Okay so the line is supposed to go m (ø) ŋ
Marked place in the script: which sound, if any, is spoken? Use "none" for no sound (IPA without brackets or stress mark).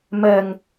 ɛ